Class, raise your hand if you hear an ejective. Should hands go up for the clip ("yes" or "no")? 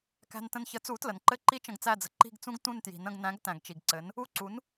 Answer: no